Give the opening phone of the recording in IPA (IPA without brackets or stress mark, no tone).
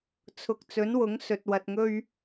t͡sʰ